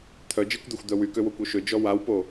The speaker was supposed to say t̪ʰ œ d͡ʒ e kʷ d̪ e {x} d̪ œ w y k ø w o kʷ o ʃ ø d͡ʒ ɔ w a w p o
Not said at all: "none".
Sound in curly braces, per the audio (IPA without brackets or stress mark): xʷ